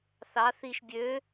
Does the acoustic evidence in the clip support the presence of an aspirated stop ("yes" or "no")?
no